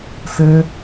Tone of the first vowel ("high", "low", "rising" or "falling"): high